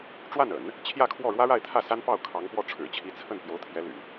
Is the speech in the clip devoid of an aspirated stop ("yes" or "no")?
no